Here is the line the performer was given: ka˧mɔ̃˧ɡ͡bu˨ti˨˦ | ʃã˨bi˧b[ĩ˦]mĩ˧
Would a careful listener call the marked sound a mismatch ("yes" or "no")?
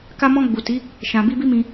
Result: yes